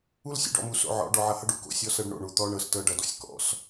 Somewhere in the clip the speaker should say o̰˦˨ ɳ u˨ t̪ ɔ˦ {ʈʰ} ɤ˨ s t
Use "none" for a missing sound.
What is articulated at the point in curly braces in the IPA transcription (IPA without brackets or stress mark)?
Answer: ɳ